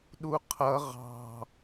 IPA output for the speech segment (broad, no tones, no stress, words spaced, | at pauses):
ɗuqʰʌ ʁɑ̤